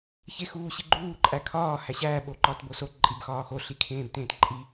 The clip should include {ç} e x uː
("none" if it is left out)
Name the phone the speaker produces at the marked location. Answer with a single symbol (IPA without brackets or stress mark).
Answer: ç